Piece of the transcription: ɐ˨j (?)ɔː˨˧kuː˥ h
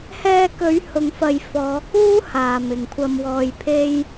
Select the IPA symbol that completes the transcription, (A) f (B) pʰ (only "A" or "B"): A